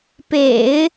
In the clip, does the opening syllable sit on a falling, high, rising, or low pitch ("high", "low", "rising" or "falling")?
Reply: low